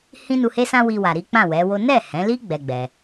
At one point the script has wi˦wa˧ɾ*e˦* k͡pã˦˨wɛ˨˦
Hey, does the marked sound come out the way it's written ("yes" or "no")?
no